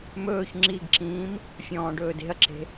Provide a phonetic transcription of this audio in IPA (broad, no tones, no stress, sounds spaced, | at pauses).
m ɵː ç ŋ͡ǁ i ɡ ǁ ĩː m | fʲ ɔ̃ː ɖ ɵː d e̤ ɐ̯ ǁ e̤